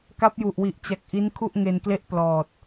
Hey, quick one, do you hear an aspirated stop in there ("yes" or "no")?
yes